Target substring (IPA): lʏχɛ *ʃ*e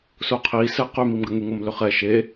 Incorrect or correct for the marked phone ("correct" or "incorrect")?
correct